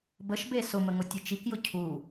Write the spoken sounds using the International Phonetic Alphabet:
b ə ʃ b e s ʊ m ə ŋ ʊ tʲ ɨ t͡ʃ i k j ʊ cʰ u

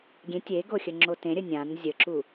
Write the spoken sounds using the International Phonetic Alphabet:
ɡʲ ẽ tʲ e ɡ o xʲ ə ŋ͡ǁ o t ẽ ɾʲ ə nʲ ã n zʲ ə ǁ u

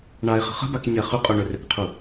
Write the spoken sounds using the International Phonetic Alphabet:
ɳ a e̯ χ ə̤ χ ə̤ b a k ɲ ɛ χ ʏ qʼ o ɳ ʏ r ʏ k qʰ u

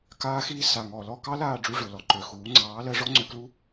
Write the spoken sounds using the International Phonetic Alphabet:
k aː˧ x iː˧ s a˨ ŋ ɔ˨ l ɔ˦˨ k ɑ˦ l aː˦˨ ɖ͡ʐ u˧ ʐ ɵ˨ l ɔ˨ ǃ ø˨ x uː˨˦ ŋ͡ǀ ɑː˨˦ l ɜ˧ ʐ ɔ˦ ŋ͡ǀ ø˧ k l u˦

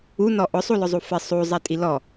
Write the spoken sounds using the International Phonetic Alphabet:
u n ɔ ʔ ʊ sˤ u l ʊ zˤ u f ɪ sˤ u zˤ ɛ tʼ i l ɔ

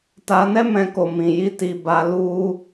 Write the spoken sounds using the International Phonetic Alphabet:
t a˧ n ɛ˦ m ɛ̃˧ k o˨ m ĩ˨ j i˧ t i˧ b a˧ l u˧

